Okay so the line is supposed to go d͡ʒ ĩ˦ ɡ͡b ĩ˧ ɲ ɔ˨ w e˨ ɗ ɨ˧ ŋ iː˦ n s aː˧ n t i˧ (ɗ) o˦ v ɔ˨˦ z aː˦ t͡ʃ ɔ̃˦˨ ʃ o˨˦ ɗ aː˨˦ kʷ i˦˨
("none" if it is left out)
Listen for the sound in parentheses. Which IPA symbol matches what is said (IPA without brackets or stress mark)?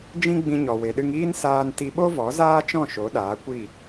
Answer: ɓ